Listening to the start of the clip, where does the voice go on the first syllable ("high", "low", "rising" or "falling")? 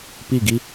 falling